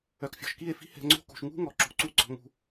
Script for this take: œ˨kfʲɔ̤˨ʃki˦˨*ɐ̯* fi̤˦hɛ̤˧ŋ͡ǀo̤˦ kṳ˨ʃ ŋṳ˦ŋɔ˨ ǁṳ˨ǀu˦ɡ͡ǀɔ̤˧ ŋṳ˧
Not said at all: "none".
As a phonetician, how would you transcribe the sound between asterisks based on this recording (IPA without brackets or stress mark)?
e̯